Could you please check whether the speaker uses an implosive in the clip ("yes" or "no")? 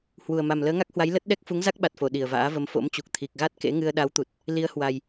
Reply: yes